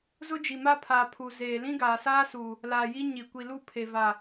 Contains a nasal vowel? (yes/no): yes